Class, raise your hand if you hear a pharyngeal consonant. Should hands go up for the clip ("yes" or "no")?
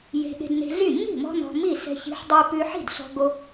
yes